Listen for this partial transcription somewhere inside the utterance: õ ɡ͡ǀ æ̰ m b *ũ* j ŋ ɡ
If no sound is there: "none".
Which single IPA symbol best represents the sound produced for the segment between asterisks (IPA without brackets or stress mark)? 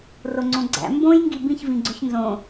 õ